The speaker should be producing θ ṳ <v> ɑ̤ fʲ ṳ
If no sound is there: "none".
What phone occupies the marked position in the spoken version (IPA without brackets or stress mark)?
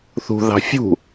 ð